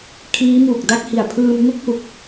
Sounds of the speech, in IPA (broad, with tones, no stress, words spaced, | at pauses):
kʰiː˦˥muː˨˩k̚da˥˩k̚hi˨˩a̯ pʰɯː˧mŋu˥˩k̚hu˨˩k̚